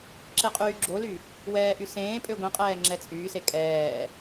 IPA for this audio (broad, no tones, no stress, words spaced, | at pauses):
ǁeqʼyːɡ͡ǁoly | wɛːʔysẽːpʼø ɡʷĩqʼɛː ŋ͡ǁɛt͡sʼyːse kʼɛː